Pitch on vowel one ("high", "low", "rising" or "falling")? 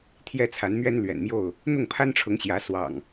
high